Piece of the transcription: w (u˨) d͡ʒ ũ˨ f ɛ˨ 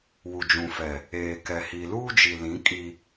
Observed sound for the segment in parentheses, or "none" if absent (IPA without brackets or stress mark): u˨